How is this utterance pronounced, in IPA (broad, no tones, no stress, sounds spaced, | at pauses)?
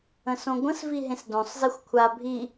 ə̃ s õ ɡʷ ə̃ s v i ɦ ẽ s d õ sˤ z e xʷ kʷʰ a bʱ i